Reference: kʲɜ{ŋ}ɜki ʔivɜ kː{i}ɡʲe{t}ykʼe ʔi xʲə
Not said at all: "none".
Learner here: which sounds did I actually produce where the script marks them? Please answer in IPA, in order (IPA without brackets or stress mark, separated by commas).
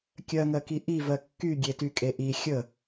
ŋ, y, t